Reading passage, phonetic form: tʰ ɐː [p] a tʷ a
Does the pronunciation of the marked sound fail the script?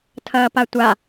no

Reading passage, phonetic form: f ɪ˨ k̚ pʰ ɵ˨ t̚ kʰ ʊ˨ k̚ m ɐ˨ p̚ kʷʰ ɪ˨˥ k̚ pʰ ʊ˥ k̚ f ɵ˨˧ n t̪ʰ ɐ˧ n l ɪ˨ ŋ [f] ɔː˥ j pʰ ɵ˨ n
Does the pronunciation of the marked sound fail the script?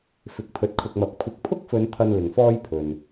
no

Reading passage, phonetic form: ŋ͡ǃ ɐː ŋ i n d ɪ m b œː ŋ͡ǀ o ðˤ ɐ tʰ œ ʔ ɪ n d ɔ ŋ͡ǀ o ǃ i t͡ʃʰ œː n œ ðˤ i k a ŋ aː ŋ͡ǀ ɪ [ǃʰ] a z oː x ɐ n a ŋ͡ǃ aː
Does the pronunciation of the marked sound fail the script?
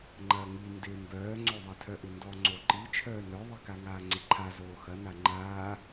no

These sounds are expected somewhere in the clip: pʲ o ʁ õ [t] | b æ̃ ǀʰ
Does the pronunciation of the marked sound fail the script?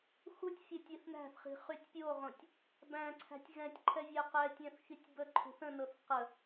yes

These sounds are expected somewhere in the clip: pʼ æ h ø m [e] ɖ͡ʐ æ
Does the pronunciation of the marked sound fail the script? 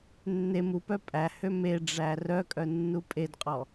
no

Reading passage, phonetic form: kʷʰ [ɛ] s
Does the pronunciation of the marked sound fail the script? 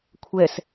no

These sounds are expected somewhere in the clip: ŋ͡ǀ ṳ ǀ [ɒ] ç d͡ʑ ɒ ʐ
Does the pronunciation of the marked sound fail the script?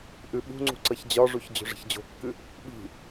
yes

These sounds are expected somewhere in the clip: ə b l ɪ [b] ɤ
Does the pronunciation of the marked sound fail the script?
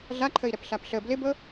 no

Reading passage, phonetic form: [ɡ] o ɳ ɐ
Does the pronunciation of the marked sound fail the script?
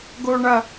no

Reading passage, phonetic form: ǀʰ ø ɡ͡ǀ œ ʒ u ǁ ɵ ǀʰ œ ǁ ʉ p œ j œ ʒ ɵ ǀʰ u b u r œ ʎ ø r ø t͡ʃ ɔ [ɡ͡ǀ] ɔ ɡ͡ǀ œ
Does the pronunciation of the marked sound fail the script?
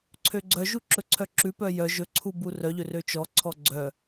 yes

